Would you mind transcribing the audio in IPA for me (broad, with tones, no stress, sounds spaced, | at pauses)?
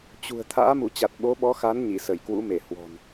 t͡ɕ ṳ˨˩ ə̯ t̪ʰ a̰ː˧˥ m u˧˩ t͡ɕ a˨˩ t̚ ɓ o˨˦ ɓ ɔ˨˦ x a˨˦ n ɲ i˧˩ s ə˧˩ j k w ṵ˧˥ m e˧˩ h w ɔ̤˨˩ n